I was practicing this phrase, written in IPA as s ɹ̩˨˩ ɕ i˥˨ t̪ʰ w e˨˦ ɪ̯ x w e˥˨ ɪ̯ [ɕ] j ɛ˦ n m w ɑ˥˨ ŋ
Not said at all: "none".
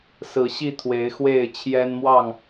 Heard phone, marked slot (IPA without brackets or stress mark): t͡ɕʰ